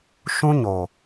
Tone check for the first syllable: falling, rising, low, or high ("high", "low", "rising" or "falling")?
high